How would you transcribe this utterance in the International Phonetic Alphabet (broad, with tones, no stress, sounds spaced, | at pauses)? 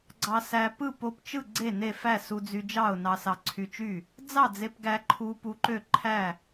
ɡ͡ǀ ɑ˧ s æ˧ p ɯ˥˨ p o˧ p t͡ʃ ɯ˥˨ ɡ͡ǀ e˥˨ n e˥˨ f æ˥˨ s u˧ d͡z y˧ d͡ʒ ɑ˥˨ ʊ̯ n ɑ˧ s ɑ˧ ǀʰ y˧ t͡ʃ y˥˨ | d͡z ɑ˥˨ d͡z e˧ p ɡ æ˧ ǃʰ u˧ p u˧ ǃ ø˥˨ ǃʰ æ˥˨